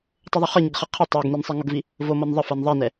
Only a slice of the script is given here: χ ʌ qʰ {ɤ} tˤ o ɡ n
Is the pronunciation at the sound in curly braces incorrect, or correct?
correct